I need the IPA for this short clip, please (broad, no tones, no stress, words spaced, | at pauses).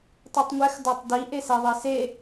tˤitˤŋʷɛx dɒtˤdi ʔesɛðˤise